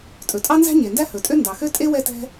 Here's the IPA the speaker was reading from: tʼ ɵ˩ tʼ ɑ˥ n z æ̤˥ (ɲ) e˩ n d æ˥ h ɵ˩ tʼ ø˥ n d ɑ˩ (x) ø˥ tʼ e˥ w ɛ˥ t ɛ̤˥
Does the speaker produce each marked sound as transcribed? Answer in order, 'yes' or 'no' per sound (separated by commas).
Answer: yes, yes